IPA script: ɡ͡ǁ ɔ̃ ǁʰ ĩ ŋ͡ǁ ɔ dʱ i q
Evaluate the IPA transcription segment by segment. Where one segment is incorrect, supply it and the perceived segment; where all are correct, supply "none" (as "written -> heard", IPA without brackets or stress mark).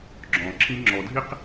none